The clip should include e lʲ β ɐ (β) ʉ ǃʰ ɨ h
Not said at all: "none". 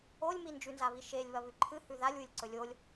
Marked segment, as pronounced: β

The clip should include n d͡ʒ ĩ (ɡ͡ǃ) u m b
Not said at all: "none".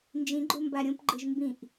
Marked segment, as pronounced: ɡ͡ǃ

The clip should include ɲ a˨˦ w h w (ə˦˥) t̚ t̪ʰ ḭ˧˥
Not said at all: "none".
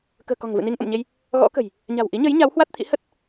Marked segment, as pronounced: a˦˥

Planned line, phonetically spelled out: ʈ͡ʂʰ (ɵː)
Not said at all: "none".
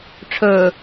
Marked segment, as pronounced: ɵː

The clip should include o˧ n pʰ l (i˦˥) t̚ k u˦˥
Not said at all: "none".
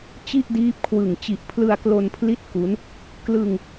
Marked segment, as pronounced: i˦˥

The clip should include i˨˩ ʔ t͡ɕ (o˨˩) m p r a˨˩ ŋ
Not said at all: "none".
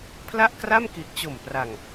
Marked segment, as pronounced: o˨˩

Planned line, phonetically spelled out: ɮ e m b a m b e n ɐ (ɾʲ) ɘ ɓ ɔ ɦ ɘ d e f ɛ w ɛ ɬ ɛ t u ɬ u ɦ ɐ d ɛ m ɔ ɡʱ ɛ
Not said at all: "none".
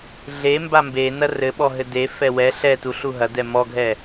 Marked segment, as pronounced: r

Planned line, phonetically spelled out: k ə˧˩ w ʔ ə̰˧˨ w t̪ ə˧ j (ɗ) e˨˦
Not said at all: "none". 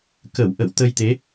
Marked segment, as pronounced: t̪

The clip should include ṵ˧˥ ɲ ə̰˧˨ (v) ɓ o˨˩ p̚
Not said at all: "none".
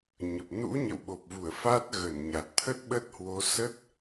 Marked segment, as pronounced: w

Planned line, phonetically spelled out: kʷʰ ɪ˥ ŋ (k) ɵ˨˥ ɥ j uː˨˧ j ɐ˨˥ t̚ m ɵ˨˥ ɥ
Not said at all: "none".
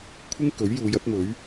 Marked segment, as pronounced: k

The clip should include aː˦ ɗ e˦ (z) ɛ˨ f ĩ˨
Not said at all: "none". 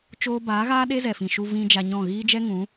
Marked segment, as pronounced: z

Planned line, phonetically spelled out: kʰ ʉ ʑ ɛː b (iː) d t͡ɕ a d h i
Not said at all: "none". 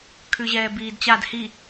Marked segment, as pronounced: iː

